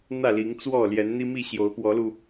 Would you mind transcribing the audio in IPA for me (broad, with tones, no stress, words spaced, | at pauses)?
n̪ä˥˨li˨˦ŋt͡swɔ˥˨ ljɛ˨˦nn̪i˦mi˥˨ ɕjo˨˦ʊ̯pwɔ˨˦lu˧